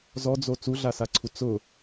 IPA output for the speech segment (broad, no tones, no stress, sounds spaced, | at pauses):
z ɔ d͡z o t͡s u ɮ a s a ǀʰ u t͡s ʊ